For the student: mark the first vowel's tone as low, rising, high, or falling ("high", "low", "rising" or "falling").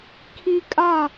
high